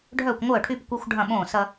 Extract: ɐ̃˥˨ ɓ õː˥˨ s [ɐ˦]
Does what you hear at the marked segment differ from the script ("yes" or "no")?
no